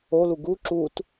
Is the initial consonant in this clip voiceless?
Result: no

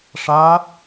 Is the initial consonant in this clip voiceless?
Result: yes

